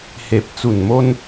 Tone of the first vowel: low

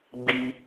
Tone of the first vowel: high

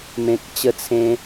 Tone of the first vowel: low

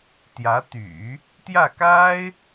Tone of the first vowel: rising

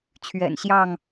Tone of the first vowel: low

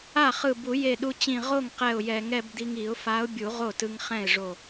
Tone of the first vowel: falling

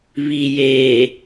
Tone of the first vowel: low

